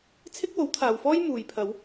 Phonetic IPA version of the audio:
t͡sʰ ɪ˥ k̚ w o˨˥ w t̪ʰ aː˨ w f ɔː˥ j m uː˧ j pʰ ɐ˨˧ w

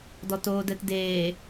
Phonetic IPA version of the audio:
d ɔ t oː d ɛ t d eː

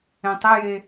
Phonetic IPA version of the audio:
ẽ tˤ e j e

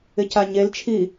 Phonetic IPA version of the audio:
ɪ c a ɲ e l t͡ʃʰ i

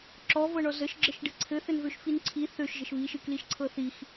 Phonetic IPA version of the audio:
ǁ ɔ v ɤ ɳ ɔ z ə ʃ ɡ͡ǁ ə ʃ ɖ ɘ ǀʰ ɘ θ ɘ n v ø ʃ f i n ǀʰ i θ ø ʃ ʒ ə ʃ β i ʃ ɨ k l i ʃ ǀʰ ɤ θ i x

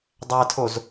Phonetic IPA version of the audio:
dˤ æ tʰ o z

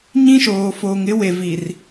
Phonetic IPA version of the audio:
ɲ ĩ˦ ʃ oː˨ f oː˨ ŋ ɪ˦ w e˨ v i˨ r

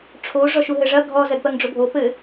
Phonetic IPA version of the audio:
ʈ͡ʂʰ o ʐ ɔ ʃ u ɦ ɘ ʐ ɐ ɡʱ ɔ z ɜ d p ɜ ŋ ɖ͡ʐ o bʱ o p ɘ

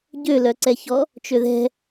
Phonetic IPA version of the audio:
ɟ ø l œ ǀ ɛ ç ɔ | t͡ʃ ø ð ɛ̤

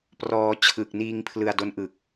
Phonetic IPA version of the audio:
p r ɔː˧ t͡ɕʰ ɯ˨˩ k̚ n iː˧ ŋ pʰ l ɯ˧ a̯ d o˦˥ n ʔ ɯ˨˩ k̚

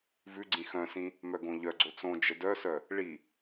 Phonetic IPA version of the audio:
v ʉ ɡ͡ǀ ĩ x œ̃ s ĩ | m œ ɡ õ ʎ œ ɡ͡ǀ o t͡s õ d͡ʒ ə d œ s œ | ɭ i

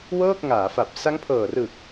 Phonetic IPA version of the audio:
w ɤː˥˩ k̚ ŋ aː˩˦ f a˨˩ p̚ s a˦˥ ŋ pʰ ɤː˨˩ r ɯ˨˩ k̚

